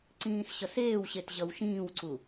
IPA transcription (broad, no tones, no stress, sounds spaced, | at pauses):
ǀ ĩː s ɕ ʌ s eː w ɕ e t ʑ ʌ w ʃ ĩː w ǀ u